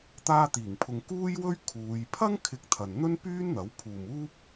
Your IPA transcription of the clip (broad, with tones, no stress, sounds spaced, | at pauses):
t̪ aː˧ t̪ iː˨˩ ŋ pʰ ʊ˨ ŋ k uː˥ j w ɵ˥ ɥ kʰ uː˨˧ j pʰ ɐ˥ ŋ kʰ ɪ˧ k̚ t̪ʰ ɐ˨ n n̪ ɵ˥ n p yː˥ n n̪ ɐ˨˥ w pʰ uː˨ m uː˥ p̚